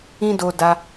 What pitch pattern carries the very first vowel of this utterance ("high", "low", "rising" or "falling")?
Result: high